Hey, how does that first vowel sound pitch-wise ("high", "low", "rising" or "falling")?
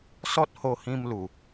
high